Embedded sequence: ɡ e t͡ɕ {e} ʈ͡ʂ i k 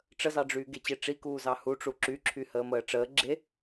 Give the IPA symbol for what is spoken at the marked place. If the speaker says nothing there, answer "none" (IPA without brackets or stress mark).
e